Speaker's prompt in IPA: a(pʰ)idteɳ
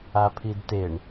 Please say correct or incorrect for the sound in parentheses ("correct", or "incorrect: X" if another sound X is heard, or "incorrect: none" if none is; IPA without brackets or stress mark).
correct